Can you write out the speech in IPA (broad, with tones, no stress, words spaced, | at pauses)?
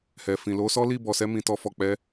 hɛ˨fĩ˨ lo˧sɔ˦li˦˨ bɔ˨sɛ˧mĩ˨ tɔ˧fɔ˨k͡pɛ˨˦